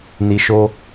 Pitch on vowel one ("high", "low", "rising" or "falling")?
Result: high